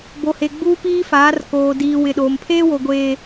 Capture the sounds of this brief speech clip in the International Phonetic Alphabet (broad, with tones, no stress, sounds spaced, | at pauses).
b o˨ h e˨ ɡ͡b uː˦ p iː˦ f aː˨˦ r k oː˨ d iː˨ w ɪ˨ ɗ oː˨ m pʰ eː˦ w o˨ ɡʷ eː˨